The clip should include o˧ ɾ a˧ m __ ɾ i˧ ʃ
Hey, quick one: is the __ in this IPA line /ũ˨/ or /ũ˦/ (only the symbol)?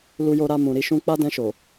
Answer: ũ˨